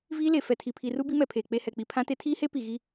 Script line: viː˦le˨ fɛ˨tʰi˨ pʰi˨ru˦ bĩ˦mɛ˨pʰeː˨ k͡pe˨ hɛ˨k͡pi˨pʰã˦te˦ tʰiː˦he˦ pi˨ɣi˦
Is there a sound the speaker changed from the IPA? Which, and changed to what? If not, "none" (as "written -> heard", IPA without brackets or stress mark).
ĩ˦ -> i˦